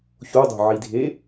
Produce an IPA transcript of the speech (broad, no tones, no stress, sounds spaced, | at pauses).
ç o dˤ o̤ ʕ i dʱ e